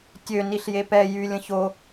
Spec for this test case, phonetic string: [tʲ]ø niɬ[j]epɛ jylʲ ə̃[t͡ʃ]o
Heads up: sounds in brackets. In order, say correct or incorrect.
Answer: correct, correct, incorrect: ç

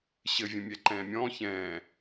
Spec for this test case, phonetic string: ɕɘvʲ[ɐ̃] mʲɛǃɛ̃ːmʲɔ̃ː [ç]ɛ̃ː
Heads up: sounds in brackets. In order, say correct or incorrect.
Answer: correct, correct

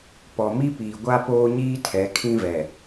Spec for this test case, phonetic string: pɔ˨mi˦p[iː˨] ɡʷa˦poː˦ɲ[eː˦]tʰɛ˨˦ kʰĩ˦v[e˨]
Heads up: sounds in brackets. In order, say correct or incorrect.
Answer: correct, incorrect: iː˦, incorrect: ɛ˨

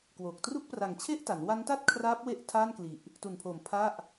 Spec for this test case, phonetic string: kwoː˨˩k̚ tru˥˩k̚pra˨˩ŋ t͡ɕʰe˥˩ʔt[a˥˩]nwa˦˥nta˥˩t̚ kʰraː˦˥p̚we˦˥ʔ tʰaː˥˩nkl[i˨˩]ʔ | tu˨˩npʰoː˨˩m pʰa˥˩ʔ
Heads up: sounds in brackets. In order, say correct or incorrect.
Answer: incorrect: a˩˦, correct

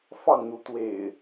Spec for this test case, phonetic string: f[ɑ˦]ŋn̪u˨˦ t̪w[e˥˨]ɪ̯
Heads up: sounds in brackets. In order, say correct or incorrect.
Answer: incorrect: ɑ˥˨, incorrect: ḛ˨˩

